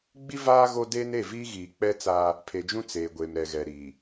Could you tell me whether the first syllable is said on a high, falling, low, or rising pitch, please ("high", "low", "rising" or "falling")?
high